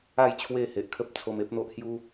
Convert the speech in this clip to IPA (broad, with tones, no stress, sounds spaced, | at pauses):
a˥˧ j t͡ɕʰ w e˥˧ h e˨ ʔ kʰ ə˦ p̚ t͡sʰ o˧ m e˦ p̚ n̪ o˦ ʔ h j u˦